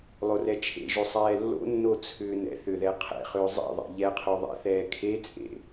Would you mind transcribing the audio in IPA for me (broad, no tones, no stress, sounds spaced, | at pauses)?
lˠ o r ɛ t͡ʃʰ ḛ ʒ o sˤ ɛː lː o̰ nː o t͡sʰ ʏː n ɛ̰ θ ʏ ð ɛ qʰ ɛ̰ χ ʏː zˤ ḛ ðˤ ḛ ʎ ɛ qʰ o ðˤ ɛ̰ θ ɛː kʰ e t͡sʼ ḛ